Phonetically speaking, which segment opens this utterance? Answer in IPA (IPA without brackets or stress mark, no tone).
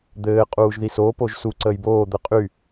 d̪